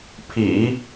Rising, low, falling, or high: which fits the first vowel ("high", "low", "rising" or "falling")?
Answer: low